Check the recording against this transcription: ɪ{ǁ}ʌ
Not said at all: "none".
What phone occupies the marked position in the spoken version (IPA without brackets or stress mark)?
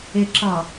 ǁ